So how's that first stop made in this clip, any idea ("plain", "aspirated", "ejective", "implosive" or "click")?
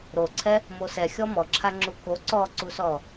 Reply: click